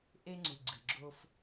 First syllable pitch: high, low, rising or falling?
high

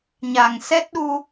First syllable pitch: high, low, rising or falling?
low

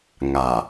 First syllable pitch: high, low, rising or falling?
low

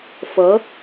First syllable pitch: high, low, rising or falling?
rising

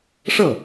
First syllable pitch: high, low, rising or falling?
falling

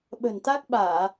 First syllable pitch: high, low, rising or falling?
low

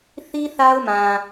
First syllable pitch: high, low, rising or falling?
high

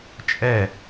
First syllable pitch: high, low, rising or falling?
falling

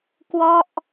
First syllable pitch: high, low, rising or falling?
falling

